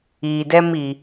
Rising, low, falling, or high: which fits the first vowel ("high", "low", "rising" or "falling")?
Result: low